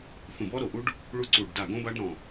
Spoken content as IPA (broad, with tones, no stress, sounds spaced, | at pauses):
θ ũ˧˩ b ɔ˦˥ ɾ o˧˩ ʔ u˦˥ ɖ | ɭ u˦˥ ǀ u˧˩ ɖ d a˧˩ ɡ õ˦˥ b a˦˥ ɖ ɾ ɔ̃˧˩